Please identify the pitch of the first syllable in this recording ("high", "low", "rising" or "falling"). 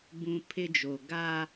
low